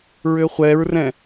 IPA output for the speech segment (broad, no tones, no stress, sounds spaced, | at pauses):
ɹ ʏ χʷ ɛ ɹ r ɛ̃